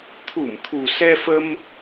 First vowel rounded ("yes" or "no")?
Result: yes